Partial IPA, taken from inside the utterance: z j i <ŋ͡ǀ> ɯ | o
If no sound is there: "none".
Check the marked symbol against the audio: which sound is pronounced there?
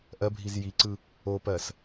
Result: ǀ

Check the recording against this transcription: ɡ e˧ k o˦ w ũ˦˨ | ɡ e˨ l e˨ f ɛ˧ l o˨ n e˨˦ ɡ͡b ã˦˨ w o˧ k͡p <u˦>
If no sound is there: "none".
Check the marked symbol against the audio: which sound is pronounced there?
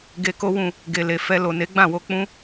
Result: ũ˦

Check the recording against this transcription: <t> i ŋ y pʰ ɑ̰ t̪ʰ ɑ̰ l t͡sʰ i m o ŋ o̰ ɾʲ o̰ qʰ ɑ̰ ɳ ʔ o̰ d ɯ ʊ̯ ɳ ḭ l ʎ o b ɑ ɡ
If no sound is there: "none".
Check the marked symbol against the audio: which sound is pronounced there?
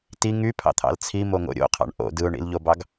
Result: t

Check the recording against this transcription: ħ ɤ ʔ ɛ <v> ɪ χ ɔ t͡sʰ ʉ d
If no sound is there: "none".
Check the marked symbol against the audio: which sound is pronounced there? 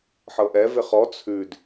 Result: v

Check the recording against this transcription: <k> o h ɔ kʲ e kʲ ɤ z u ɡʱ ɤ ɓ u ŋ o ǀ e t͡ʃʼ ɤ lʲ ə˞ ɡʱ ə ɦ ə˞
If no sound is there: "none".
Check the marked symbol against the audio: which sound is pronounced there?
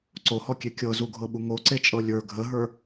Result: ǀ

